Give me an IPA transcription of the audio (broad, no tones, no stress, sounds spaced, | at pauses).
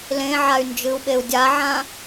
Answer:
l ẽ ʕ a y̯ n d͡ʒ ɨ u̯ ɓ e u̯ dʲ a ʕ ã